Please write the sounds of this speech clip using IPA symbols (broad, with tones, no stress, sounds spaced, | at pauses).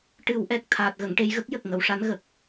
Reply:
ʈ ɨ˨˩˦ w ʔ ɛ˨˩ k̚ t̪ʰ aː˨˩ t̚ ɣ ə˨˩˨ ŋ ʈ e˧ j ɣ ə˦˥ k̚ j ə˨˩ k̚ ŋ ə˨˩˨ w ʂ a˧˥ n ɣ ə˨˩ k̚